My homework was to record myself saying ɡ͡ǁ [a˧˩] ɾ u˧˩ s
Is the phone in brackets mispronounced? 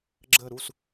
yes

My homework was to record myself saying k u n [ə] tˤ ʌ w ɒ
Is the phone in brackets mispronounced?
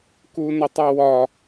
no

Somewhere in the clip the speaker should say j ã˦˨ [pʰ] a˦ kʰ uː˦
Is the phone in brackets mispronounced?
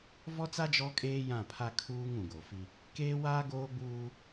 no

